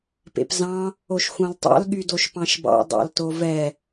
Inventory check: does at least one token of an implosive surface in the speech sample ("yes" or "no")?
yes